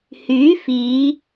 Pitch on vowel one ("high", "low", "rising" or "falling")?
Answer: rising